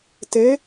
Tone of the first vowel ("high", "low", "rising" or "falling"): rising